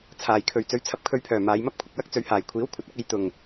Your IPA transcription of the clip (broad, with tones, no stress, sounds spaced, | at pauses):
t͡sʰ aː˨˩ j kʰ ɵ˨ ɥ t͡s ɵ˨˧ ɥ t͡sʰ ɐ˧ p̚ kʰ ɵ˧ ɥ pʰ œː˨˩ m aː˨˧ j m ɐ˥ p̚ kʷʰ ɪ˨ k̚ w ɐ˥ k̚ t͡s ɵ˨˧ ɥ h aː˨˩ j kʷʰ iː˨˥ w kʷʰ ɐ˨ t̚ ɐ˨˥ k̚ e˨˧ j t̪ ʊ˨˩ ŋ